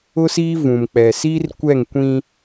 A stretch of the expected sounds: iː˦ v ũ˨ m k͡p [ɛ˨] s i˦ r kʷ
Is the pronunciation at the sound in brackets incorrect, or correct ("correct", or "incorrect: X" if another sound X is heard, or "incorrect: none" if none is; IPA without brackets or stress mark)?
correct